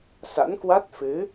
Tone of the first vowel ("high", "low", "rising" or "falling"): rising